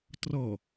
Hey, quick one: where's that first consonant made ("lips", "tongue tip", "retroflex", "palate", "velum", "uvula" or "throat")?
tongue tip